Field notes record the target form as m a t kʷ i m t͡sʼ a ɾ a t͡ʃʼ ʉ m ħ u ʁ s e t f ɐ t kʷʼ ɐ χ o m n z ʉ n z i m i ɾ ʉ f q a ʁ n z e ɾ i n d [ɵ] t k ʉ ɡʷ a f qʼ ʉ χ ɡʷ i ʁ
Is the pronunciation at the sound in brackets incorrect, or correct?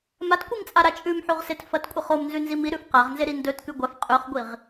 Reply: correct